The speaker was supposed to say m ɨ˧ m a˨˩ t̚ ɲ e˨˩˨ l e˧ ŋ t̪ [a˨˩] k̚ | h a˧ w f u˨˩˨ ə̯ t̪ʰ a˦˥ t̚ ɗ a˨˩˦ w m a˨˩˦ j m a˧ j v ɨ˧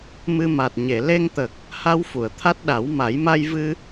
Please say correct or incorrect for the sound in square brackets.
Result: incorrect